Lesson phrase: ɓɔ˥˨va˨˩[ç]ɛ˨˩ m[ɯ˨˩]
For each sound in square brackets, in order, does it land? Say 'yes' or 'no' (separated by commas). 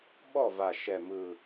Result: no, yes